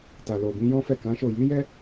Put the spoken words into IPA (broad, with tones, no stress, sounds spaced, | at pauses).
t a˨ l o˨ b ĩ˨˦ j ɔ̃˦ f ɛ˦˨ k ã˨˦ ʃ o˦˨ j i˨˦ j ɛ˦